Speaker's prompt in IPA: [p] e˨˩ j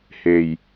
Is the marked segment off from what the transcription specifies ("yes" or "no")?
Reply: yes